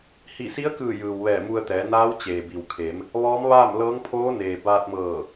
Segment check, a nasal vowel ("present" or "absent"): absent